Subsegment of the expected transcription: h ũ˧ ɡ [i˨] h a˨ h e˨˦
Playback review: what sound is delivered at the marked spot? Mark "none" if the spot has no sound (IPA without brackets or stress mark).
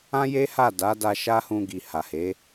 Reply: i˨